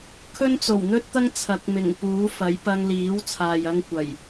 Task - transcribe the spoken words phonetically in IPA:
kʰ ɵ˥ n t͡s o˨˩ w n̪ ɵ˥ t̚ t̪ ɐ˥ ŋ t͡sʰ ɐ˨˥ k̚ m ɪ˨˩ ŋ p uː˨˥ f ɐ˨˥ j p ɐ˧ ŋ l iː˨˥ w t͡sʰ aː˨ j ɐ˧ ŋ kʷ ɐ˨˩ j

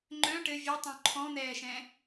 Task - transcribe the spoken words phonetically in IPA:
ŋ͡ǃ œ̃ ʈ ɘ vʲ ɛ tˤ õ ǃʰ ɔ̃ n̪ ɛː ʃ ɛ̃

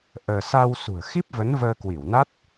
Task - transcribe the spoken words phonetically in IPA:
ʔ əː˧ s a˧ w s ṳ˨˩ ə̯ x i˦˥ p̚ v ə˨˦ n v əː˧ k w i˧˩ w n a˦˥ t̚

